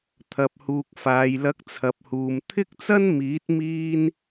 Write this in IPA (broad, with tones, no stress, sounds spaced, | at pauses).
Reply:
t̪ʰ ɐ˨ p̚ h uː˨ k̚ f aː˨ j l ɐ˨˥ k̚ t͡sʰ ɐ˨ p̚ h uː˨ m t̪ʰ ɪ˥ k̚ t͡s ɐ˥ n m iː˨˥ t̚ m iː˥ n